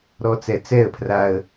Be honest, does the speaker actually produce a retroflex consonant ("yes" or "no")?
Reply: no